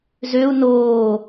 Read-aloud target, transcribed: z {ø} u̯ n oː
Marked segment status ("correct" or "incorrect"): correct